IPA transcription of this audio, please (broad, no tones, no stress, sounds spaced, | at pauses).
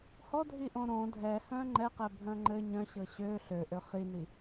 h ɔ dʱ i ʔ õ ɾ õ dʱ ɛ h œ̃ ŋ͡ǃ ɛ q ɛ bʱ œ̃ ŋ͡ǃ ɘ ɲ œ̃ ɕ ɤ ɕ ø ɬ ø ʔ ø χ i n i